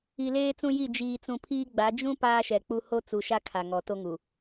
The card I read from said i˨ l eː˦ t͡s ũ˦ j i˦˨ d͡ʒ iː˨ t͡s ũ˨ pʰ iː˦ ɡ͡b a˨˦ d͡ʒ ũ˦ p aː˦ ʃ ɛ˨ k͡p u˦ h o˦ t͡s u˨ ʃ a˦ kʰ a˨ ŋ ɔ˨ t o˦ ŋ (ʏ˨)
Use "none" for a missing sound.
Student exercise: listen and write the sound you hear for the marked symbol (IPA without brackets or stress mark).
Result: u˨